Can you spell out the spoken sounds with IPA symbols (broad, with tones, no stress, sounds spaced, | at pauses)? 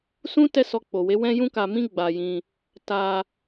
s ũ˦ t ɛ˦˨ s ɔ˧ k͡p o˨ w e˨˦ w ɛ̃˦ j ũ˦ k a˧ m ĩ˦ ɡ͡b a˧ j ĩ˧ | t a˧